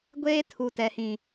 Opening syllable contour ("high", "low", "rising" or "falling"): high